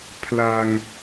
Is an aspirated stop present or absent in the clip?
present